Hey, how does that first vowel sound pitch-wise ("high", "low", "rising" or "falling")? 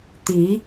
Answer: rising